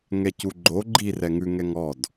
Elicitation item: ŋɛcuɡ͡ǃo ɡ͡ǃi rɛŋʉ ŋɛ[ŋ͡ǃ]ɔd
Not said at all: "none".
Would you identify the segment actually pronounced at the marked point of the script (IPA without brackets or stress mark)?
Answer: ŋ